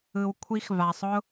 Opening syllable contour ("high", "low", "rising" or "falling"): low